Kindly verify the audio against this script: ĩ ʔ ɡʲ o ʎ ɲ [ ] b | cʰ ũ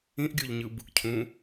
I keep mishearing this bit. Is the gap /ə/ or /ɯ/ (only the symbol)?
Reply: ɯ